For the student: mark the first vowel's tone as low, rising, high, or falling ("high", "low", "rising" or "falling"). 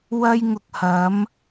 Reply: high